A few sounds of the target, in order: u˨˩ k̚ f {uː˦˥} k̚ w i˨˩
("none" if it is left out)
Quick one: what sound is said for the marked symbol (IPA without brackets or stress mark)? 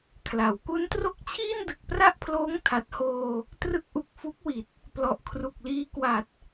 u˦˥